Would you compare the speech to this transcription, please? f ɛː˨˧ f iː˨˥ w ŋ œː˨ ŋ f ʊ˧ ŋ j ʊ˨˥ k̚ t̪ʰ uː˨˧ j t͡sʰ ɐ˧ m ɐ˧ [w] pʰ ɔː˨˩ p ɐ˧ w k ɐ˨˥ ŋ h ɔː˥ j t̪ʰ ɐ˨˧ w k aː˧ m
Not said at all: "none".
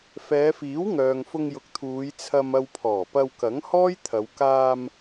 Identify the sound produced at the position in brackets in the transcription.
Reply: w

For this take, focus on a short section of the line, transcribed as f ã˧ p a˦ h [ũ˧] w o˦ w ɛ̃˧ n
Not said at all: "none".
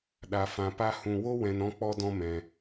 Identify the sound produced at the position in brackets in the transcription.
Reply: ũ˧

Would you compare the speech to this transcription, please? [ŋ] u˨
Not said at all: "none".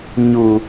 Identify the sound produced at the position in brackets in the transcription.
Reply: ɲ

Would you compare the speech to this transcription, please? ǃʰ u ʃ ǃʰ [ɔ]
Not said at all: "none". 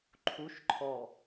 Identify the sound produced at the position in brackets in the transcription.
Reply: ɔ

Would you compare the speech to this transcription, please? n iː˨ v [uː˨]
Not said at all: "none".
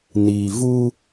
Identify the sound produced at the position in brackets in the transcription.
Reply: uː˦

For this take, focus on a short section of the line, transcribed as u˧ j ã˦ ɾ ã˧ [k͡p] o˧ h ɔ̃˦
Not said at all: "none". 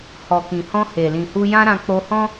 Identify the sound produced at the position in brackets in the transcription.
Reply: k͡p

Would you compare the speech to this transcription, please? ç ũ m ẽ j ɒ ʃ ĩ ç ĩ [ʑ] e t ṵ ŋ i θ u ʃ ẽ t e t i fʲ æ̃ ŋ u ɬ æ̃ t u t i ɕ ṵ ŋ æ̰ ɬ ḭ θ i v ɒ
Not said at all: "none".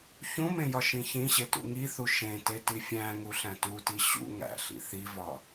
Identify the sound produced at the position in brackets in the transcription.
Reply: ɕ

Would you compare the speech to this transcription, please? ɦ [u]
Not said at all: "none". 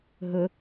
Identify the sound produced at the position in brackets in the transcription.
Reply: ʊ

